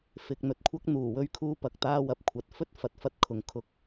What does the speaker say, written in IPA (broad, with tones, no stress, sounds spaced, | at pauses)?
f ɪ˨ k̚ n̪ ɵ˨ t̚ kʷʰ ɐ˥ k̚ n̪ uː˨˩ w ɵ˥ ɥ kʰ uː˧ p ɐ˨ k̚ t̪ aː˥ w ɐ˨ p̚ kʷʰ ɐ˨ t̚ f ɵ˥ t̚ f ɐ˨˥ t̚ f ɐ˥ t̚ kʰ ʊ˨ ŋ kʰ ʊ˧ k̚